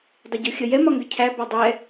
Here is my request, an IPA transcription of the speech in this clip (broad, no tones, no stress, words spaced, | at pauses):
dˤɪɟuxʲə jɛmɒŋɡə cʰæ bɒdˤɛ